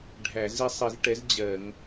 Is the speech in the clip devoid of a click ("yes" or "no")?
yes